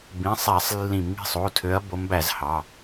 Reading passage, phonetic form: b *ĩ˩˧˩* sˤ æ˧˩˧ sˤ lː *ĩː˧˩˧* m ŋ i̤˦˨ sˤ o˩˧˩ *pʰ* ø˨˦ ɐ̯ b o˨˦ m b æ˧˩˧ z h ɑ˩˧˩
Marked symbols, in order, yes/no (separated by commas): yes, no, no